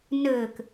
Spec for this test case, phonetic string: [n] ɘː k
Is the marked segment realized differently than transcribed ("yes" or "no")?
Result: no